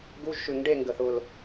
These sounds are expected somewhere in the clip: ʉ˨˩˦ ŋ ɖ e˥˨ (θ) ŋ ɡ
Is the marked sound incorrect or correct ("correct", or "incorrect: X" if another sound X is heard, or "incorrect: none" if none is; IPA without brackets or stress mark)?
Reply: incorrect: none